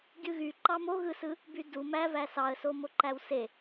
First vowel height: high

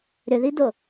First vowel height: high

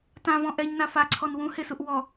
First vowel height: low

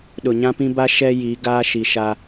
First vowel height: high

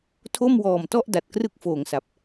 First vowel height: mid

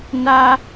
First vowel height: low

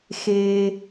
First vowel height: mid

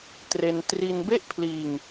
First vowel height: mid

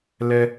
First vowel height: mid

